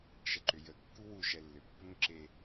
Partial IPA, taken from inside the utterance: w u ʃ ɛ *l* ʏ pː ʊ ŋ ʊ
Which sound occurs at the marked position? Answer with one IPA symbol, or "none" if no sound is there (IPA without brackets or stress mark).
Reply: lː